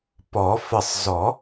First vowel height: mid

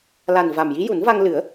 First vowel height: low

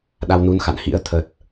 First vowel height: low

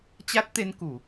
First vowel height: low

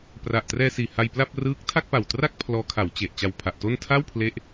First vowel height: low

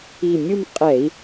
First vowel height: high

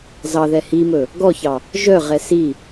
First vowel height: low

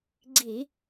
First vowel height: high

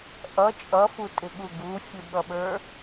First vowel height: mid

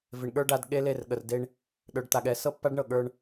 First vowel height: high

